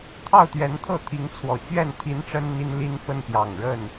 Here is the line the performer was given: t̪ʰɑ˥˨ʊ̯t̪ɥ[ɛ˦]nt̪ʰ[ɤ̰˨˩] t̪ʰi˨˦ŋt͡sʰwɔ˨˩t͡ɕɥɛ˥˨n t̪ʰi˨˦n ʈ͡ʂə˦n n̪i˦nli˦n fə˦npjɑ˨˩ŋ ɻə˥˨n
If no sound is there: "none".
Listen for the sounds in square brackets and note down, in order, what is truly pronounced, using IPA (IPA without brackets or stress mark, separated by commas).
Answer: ɛ˨˦, ɤ˥˨